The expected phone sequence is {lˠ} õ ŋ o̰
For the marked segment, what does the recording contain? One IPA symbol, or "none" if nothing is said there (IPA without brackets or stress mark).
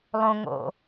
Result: lˠ